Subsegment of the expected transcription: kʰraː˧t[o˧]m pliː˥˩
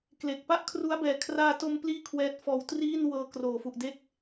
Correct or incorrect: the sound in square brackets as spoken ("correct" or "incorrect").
correct